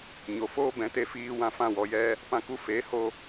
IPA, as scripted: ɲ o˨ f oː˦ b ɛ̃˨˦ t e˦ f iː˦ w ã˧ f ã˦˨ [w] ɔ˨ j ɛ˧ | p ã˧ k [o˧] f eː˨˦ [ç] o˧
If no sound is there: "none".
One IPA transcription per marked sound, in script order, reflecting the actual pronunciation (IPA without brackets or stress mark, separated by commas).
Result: w, u˧, h